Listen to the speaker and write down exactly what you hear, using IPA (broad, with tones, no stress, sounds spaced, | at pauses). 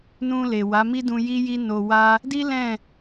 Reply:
n ũ˧ l e˨ w a˨˦ m i˦ d ũ˧ j i˦ j i˦ n o˧ w a˦ | d i˦ l ɛ̃˦˨